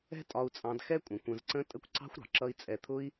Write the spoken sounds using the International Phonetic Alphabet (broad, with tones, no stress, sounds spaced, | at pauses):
ɛ̤˦ tʼ ɒ˧ u̯ t͡sʼ ɑ̃˧ d x ɛ˦ kʷʼ ə̃˧ kʷ ə̃˧ z ǀ ə̃˦ tʼ ə˦ kʷ ǀ ɑ̤˦ xʷ ɾ ɑ̤˨ ǁ ʌ˦ i̯ t͡sʼ ɛ˧ t̪ʰ ʊ˦ i̯